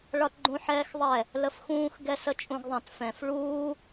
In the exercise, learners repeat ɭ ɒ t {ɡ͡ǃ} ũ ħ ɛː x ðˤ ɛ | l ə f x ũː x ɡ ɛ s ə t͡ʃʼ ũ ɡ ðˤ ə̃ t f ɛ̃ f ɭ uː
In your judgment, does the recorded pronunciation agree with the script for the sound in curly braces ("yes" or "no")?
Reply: yes